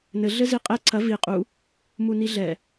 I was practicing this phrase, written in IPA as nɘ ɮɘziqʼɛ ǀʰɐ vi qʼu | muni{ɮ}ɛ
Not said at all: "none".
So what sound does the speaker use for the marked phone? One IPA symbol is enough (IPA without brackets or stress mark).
ɮ